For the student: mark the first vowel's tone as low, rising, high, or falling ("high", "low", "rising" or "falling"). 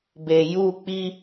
low